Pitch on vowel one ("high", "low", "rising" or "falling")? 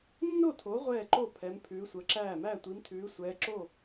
falling